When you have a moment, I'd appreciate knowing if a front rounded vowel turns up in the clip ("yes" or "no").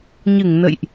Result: no